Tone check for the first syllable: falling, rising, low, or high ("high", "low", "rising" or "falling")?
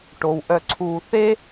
low